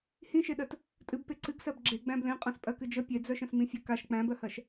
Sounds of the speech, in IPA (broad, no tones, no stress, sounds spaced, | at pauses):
h ĩ ʃ e ɗ ɜ t | tʼ ɨ b p e ǀ ɨ ɡ s ɜ b ɡ͡ǁ e ɡ͡b æ̃ b l ẽ qʼ ã s pʼ ɜ k ɨ d͡ʒ ə pʲ e d͡z œ ʃ ə̃ s m ĩ fʲ ə k a ʃ k͡p æ̃ b ɜ h ɜ ʃ